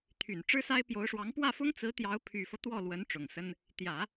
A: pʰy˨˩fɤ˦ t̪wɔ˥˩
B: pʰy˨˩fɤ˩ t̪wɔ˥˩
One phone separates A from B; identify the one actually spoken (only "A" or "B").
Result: A